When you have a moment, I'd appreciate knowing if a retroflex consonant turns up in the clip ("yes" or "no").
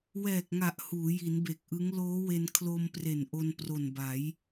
no